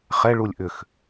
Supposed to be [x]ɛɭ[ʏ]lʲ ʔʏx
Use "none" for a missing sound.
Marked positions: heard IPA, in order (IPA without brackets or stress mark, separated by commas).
χ, u